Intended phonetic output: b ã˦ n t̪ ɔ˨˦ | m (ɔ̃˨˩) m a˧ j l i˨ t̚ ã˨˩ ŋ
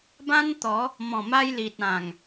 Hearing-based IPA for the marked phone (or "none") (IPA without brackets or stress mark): ɔ̃˨˩